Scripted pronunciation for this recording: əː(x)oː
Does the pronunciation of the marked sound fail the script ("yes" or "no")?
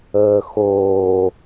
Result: no